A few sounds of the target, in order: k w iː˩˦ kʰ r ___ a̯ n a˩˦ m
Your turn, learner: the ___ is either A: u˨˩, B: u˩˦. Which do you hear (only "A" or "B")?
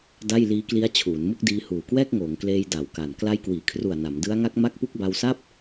A